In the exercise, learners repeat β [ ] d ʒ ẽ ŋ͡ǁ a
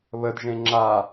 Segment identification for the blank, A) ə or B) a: A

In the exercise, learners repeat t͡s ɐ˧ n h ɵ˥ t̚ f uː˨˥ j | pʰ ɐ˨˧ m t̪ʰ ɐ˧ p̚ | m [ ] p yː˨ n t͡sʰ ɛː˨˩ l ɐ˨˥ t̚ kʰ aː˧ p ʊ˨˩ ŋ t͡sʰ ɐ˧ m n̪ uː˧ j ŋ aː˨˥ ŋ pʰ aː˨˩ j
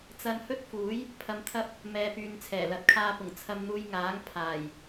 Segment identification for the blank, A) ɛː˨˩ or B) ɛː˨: B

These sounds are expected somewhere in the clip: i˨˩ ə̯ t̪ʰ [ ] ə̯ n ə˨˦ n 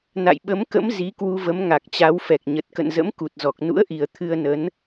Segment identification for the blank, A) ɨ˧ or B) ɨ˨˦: A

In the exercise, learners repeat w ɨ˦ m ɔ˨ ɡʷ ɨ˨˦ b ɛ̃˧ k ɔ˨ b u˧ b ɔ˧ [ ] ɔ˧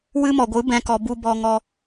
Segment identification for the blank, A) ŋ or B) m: A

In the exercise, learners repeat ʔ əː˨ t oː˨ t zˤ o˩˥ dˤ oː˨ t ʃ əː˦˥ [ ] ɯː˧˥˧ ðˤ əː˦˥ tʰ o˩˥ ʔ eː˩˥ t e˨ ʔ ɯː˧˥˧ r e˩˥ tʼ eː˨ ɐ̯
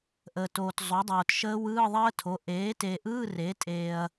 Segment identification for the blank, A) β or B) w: B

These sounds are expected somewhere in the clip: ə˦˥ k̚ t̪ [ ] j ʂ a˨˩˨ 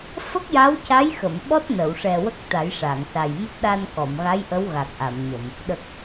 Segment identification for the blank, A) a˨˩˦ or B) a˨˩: A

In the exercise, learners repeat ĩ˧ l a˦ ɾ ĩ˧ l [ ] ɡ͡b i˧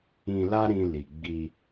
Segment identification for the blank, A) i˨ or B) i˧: A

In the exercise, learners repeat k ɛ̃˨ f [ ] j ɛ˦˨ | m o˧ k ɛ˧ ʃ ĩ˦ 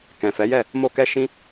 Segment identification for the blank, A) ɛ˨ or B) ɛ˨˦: B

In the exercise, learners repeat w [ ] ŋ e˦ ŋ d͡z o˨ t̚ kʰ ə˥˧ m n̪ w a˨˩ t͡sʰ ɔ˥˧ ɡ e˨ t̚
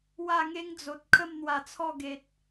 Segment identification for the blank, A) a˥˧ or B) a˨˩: A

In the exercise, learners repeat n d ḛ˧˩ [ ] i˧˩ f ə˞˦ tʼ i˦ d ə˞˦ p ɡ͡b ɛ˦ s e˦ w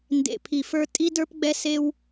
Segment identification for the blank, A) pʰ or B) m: A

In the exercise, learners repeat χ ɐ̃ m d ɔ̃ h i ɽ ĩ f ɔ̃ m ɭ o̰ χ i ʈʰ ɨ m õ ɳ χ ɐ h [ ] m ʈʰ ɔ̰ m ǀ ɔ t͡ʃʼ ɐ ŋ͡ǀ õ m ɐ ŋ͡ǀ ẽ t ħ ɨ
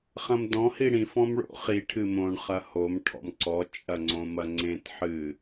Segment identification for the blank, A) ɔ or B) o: B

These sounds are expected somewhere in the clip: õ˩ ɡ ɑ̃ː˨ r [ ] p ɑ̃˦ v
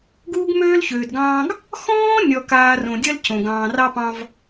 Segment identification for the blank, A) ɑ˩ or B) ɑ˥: B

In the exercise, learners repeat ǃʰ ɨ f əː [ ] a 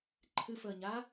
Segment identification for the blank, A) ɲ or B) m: A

